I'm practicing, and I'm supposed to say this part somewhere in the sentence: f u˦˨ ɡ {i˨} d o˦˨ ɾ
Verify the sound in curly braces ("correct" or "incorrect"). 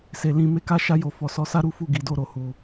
incorrect